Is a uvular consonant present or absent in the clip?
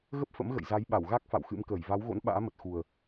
absent